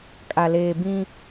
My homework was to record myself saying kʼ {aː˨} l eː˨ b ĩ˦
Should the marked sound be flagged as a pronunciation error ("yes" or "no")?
yes